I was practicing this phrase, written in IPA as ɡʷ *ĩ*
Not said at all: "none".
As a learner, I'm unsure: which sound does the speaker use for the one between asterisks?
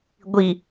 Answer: i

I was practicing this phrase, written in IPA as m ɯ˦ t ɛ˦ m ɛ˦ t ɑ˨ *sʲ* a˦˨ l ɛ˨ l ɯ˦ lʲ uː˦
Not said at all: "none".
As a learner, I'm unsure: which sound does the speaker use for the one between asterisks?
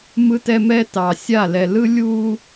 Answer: sʲ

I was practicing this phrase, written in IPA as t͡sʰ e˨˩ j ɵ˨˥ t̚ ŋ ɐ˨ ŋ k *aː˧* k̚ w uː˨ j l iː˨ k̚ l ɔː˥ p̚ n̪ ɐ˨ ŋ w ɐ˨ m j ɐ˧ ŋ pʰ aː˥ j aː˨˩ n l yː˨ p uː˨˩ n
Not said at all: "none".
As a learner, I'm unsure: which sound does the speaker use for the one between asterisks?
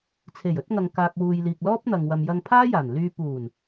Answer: aː˨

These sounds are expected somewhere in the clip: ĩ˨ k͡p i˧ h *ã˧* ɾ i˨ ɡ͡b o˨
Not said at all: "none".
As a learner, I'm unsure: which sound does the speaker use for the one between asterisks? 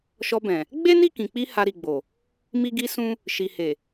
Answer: a˧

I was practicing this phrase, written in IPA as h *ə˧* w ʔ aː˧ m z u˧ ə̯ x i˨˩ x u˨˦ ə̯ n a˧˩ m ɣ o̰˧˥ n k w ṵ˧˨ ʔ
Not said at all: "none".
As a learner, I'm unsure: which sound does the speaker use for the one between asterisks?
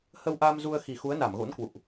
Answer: ə˧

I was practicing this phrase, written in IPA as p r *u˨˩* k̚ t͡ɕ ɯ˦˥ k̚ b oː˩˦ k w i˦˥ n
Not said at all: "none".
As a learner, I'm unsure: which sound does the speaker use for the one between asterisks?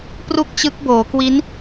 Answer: u˥˩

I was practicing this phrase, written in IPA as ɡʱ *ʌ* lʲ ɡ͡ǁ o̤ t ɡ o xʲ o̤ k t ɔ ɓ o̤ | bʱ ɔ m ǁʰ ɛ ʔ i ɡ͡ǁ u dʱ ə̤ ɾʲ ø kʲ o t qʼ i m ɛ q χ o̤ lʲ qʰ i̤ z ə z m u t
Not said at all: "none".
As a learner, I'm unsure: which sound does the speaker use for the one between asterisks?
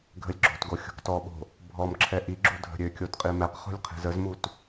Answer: ə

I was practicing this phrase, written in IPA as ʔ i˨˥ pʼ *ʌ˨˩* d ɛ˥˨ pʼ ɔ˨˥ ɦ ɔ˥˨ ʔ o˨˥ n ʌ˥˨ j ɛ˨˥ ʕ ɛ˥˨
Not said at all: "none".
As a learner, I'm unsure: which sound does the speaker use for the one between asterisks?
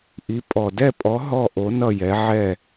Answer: ɔ˨˩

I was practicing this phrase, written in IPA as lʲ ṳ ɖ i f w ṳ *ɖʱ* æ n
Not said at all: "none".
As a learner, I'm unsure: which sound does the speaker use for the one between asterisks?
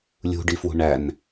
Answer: ɳ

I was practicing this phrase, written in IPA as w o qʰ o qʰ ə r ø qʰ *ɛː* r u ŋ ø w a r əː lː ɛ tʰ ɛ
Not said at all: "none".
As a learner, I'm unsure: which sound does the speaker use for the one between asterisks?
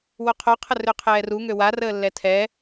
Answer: ɛː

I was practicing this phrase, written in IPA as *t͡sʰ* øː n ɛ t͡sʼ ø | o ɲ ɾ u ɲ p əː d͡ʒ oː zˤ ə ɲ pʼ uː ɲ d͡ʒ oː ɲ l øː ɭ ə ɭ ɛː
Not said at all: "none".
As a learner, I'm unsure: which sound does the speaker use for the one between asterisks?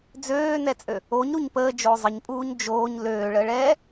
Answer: d͡z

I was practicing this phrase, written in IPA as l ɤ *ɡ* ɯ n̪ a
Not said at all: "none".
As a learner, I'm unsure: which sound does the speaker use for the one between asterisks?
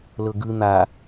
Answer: ɡ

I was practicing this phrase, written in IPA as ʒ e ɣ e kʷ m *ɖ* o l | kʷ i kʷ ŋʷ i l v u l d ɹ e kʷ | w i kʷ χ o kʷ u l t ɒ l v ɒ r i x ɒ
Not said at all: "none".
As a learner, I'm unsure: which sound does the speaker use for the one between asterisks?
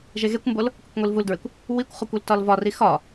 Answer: b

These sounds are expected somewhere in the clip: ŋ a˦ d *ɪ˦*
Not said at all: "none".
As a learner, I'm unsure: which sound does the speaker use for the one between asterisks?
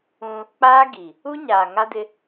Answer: ɪ˦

